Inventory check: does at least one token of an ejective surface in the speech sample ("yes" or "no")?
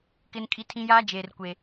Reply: yes